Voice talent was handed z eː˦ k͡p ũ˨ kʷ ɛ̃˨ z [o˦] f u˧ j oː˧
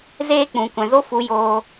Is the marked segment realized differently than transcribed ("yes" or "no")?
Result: no